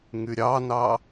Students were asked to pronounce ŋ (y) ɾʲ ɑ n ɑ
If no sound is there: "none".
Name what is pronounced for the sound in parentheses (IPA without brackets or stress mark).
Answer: y